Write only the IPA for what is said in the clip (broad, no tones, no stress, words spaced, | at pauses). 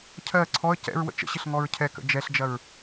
cʰɜ ǀʰɔə̯ cɛ̰ɹwə̰ t͡ʃə̰ɕɪɬ ŋɔɹcʰɛkə̰ d͡ʒɛɬd͡ʒɐɹ